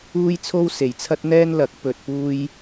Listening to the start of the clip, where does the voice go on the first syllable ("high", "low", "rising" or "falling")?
high